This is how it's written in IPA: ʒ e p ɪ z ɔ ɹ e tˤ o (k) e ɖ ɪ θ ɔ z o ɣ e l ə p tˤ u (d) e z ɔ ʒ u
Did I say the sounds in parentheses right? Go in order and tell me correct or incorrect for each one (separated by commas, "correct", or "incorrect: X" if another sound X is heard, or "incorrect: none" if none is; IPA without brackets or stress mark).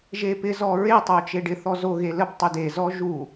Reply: incorrect: t͡ʃ, correct